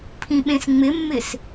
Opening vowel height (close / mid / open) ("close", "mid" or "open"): close